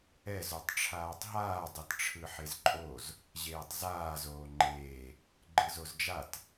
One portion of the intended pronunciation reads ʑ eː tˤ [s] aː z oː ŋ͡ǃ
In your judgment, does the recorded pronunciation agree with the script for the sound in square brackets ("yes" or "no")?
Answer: no